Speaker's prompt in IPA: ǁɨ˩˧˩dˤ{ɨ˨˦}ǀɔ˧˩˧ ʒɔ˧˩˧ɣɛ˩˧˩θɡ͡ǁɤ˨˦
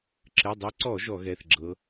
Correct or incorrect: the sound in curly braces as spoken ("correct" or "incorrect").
correct